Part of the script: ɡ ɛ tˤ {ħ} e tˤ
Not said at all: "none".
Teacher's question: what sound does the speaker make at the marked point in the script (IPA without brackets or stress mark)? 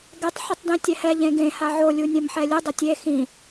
ħ